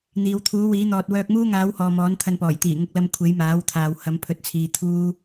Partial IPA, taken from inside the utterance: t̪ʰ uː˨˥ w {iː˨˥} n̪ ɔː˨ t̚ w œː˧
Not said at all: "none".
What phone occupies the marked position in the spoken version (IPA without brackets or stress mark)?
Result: iː˨˥